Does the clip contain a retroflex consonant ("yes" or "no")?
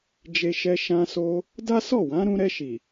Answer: no